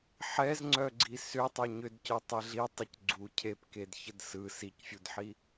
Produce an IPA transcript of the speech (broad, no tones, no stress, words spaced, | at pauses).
ħɛzŋ͡ǀœɡ͡ǀi sʏ tˤœɲʏdcœ tˤɛɮitˤʏc ɡ͡ǀu cʰepked çədsɯ sicfʲudħi